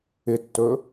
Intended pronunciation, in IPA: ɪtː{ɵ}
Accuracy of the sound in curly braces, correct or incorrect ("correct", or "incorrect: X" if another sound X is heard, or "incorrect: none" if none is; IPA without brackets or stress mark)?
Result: correct